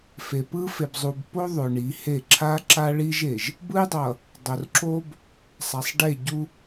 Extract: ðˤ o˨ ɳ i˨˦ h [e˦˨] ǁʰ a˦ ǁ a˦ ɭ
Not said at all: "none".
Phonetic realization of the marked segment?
e˦˨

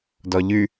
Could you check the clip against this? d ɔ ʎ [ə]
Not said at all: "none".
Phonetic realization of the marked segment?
ʉ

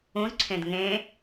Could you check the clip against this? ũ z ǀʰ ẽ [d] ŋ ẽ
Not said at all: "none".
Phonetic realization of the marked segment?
d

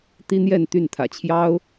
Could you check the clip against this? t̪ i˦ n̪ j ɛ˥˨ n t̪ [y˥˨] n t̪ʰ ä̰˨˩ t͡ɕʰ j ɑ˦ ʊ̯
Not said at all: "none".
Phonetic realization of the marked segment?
y˥˨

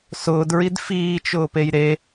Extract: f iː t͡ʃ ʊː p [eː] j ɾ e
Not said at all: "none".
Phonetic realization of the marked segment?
e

